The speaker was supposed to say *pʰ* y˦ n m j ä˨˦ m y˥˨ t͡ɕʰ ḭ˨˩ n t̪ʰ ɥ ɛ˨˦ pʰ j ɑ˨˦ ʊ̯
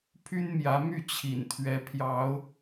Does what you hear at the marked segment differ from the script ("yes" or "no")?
no